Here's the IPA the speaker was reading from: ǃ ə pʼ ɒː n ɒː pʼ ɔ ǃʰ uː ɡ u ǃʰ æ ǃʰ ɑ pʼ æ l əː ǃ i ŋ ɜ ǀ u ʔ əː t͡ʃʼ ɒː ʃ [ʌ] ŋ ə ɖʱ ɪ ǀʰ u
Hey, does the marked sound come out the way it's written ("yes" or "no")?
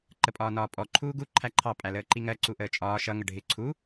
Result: yes